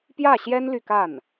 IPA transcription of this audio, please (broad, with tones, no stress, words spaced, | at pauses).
pjä˥˩ɕjɛ˥n ly˥˧ka˥˩n